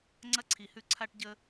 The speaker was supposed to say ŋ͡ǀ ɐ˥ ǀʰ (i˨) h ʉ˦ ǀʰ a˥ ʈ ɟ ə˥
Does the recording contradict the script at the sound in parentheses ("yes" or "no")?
no